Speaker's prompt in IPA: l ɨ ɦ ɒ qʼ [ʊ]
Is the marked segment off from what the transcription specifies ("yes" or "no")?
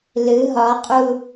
yes